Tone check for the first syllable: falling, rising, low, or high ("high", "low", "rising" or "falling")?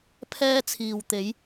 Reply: high